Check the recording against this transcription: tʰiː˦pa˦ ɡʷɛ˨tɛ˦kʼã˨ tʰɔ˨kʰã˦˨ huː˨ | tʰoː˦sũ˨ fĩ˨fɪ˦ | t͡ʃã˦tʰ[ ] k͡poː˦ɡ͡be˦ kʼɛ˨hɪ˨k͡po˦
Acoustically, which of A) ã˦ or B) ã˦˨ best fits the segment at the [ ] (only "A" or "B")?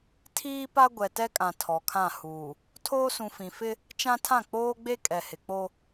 B